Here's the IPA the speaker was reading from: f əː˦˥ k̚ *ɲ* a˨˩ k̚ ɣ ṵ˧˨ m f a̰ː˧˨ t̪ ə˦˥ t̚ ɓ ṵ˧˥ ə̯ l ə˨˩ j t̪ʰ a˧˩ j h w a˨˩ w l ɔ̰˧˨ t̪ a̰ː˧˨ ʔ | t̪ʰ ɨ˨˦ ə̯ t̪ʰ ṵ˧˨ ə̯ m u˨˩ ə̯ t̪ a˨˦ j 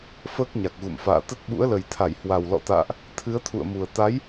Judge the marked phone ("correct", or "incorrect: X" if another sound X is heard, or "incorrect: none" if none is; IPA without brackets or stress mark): correct